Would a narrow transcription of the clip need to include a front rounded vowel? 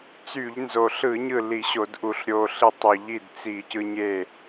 yes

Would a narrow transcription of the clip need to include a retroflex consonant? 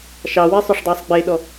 yes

